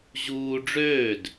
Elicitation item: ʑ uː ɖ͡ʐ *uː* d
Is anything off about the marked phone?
yes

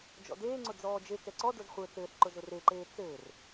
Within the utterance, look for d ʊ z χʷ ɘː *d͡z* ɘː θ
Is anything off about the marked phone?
yes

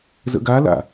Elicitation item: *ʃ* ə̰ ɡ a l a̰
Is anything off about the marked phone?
yes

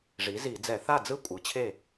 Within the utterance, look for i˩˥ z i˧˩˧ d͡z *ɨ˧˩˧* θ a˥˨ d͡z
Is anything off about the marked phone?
yes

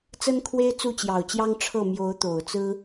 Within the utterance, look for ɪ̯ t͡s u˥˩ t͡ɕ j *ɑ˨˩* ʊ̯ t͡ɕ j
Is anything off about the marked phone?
no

